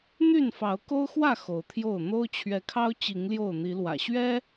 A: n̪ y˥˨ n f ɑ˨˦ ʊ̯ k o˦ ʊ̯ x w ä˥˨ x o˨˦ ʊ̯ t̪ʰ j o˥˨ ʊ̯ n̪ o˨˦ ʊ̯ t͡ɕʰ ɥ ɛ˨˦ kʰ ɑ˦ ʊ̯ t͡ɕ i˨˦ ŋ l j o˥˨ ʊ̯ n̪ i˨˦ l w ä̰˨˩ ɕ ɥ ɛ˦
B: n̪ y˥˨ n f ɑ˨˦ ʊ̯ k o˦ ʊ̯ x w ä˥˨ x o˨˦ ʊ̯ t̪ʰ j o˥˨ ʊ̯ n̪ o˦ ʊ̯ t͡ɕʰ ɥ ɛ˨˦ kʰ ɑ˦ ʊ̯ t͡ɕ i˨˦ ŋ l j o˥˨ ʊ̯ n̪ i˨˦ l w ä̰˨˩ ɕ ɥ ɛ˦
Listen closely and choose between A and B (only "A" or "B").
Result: B